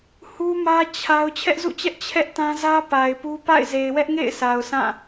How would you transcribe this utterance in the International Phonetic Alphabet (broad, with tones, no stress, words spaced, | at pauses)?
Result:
hu˦mä˦ t͡ɕʰa˦ʊ̯ t͡ɕʰɛ˦ʔzṵ˦˨t͡ɕɛ˦ʔ t͡ɕʰɛ˦ʔtã˦zä˦ pa˨ɪ̯pu˦ pa̰˦˨ɪ̯ze˨ɪ̯wɛ˦ʔŋḛ˦˨ɪ̯ sʰa˨ʊ̯sã˦˨